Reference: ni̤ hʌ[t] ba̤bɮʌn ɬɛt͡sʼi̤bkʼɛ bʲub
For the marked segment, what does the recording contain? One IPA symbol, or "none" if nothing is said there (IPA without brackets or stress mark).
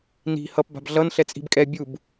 p